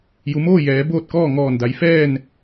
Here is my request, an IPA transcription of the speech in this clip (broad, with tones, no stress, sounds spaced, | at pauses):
j u˩˧ m oː˥˨ j ɛː˩˧ b oː˥˨ t̚ k ɔː˥˨ ŋ ɔː˧˩ n d a˩˧ j f ɛː˥˨ n